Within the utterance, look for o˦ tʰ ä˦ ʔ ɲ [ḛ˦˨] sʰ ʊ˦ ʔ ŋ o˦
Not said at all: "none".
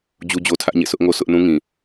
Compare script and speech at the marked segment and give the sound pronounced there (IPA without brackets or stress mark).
ḛ˦˨